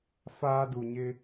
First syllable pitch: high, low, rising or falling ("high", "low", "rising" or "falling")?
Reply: high